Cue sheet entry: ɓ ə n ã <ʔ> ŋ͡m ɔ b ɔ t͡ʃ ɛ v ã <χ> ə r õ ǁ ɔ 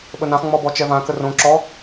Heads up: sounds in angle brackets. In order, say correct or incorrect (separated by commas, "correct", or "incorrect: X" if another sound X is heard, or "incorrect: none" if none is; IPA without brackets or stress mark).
incorrect: χ, incorrect: k